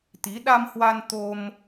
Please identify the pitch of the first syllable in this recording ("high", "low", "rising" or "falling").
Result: rising